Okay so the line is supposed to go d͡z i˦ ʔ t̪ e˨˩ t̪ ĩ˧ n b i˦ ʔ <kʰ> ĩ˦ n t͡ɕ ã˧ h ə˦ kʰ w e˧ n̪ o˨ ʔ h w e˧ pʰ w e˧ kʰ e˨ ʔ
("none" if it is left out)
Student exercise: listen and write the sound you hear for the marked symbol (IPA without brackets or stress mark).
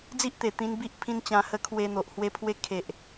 pʰ